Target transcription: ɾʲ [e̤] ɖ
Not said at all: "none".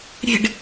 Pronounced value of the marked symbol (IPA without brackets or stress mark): e̤